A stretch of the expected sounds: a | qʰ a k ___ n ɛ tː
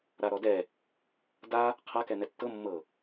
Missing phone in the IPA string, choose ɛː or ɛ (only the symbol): ɛ